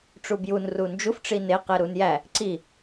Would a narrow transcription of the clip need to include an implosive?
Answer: no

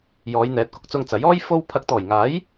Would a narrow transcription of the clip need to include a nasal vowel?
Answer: no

